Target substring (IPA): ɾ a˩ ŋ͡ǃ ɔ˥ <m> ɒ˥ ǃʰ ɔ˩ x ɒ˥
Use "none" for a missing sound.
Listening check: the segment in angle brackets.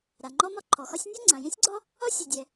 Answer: m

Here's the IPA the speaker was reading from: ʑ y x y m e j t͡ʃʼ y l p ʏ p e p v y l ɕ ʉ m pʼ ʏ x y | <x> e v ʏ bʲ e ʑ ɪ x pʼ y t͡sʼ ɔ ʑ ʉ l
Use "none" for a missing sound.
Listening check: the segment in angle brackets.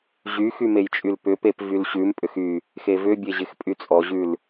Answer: x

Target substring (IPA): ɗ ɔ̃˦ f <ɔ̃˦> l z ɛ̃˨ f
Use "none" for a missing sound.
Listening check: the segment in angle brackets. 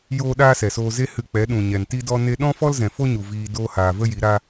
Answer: ɔ˦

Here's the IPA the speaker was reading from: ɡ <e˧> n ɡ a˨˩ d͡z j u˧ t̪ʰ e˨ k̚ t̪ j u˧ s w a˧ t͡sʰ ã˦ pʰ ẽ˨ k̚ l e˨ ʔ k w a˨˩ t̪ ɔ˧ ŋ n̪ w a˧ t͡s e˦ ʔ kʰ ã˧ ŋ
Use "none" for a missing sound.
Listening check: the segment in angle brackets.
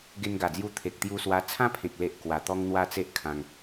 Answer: e˧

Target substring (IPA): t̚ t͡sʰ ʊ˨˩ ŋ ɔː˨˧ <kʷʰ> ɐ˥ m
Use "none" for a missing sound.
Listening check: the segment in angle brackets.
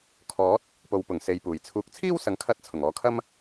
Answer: kʰ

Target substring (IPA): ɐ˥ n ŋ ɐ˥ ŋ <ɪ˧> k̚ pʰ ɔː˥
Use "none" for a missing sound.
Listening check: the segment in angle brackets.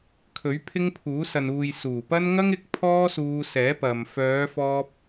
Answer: ɪ˧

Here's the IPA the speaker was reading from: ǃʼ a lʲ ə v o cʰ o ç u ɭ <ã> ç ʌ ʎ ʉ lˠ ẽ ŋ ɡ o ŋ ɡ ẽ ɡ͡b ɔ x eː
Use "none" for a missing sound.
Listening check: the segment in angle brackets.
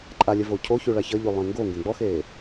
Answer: a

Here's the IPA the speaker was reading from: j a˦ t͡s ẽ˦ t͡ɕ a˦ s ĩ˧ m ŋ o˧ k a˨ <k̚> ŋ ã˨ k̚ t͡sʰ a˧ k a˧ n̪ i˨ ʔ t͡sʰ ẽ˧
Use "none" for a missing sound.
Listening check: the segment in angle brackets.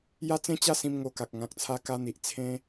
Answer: k̚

